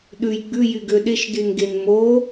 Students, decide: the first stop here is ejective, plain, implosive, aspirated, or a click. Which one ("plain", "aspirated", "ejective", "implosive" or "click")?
implosive